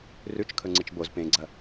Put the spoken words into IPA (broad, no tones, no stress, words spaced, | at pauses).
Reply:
rʉt͡ʃkʰɵŋ͡ǀɨt͡ʃ boz pẽɡ͡ǀɐ